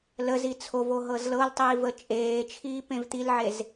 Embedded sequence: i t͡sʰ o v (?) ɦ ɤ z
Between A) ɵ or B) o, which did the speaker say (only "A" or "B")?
B